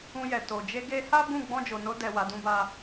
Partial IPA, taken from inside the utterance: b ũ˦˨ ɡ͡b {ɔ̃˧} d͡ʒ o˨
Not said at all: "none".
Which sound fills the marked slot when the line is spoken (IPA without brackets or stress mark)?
ɔ̃˧